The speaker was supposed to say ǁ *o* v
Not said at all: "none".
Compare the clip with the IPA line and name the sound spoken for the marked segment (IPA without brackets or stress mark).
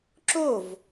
o